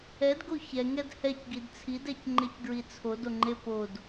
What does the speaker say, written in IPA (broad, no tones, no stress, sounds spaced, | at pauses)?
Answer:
ɛ d ɡ o ç ɛ ŋ ɛ d h ɛ c ɡ i d t͡sʰ i d ɛ c ŋ͡ǃ e c ɡ ɹ i t͡sʰ o d o ŋ͡ǃ e p o d